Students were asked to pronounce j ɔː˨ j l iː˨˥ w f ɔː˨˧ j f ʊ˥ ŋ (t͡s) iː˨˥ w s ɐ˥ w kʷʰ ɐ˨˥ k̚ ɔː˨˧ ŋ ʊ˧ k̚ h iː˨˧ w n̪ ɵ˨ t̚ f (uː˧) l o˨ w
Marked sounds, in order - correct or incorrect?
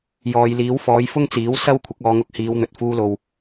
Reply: correct, correct

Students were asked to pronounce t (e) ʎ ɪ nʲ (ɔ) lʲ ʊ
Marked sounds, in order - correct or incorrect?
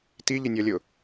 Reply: incorrect, correct

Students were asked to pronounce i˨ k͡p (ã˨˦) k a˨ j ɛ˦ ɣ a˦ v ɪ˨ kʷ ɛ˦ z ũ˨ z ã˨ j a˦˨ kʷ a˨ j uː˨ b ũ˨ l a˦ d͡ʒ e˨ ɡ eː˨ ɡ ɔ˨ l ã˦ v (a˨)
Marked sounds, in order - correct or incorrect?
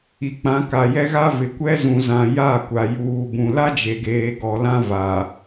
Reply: correct, correct

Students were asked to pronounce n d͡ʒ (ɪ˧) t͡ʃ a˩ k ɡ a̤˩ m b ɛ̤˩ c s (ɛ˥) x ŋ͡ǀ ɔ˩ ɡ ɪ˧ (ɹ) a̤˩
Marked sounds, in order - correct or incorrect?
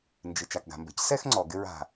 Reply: incorrect, correct, correct

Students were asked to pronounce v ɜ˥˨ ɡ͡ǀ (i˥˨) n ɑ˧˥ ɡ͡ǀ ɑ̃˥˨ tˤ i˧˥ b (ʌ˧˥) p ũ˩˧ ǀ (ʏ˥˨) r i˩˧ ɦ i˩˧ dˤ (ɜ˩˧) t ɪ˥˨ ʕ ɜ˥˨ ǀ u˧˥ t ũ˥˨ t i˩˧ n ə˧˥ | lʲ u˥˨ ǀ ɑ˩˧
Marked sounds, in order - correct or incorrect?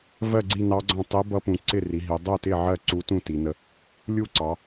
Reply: correct, correct, incorrect, incorrect

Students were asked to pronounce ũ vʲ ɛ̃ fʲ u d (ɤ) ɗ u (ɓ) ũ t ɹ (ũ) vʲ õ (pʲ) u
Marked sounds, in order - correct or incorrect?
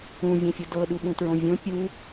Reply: correct, correct, incorrect, correct

